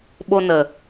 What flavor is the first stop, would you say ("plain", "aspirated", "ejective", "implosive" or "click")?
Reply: implosive